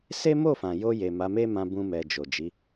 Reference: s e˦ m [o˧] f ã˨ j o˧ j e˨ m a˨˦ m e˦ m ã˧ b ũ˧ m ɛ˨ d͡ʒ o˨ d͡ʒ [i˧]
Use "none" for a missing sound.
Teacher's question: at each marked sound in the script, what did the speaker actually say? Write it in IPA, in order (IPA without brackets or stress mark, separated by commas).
o˦˨, i˨˦